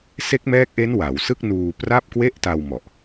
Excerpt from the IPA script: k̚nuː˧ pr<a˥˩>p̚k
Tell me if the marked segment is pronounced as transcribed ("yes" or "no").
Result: yes